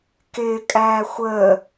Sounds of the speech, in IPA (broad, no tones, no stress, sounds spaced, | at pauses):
k ɪː kʼ æː xʷ əː